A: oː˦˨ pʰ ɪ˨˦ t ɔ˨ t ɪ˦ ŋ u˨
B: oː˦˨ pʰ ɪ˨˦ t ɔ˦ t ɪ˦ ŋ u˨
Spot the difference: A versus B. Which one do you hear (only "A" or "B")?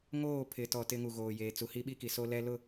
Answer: A